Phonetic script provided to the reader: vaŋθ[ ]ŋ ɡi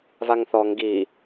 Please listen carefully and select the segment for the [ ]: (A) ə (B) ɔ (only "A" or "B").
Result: B